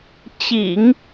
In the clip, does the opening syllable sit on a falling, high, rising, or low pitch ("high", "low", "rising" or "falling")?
low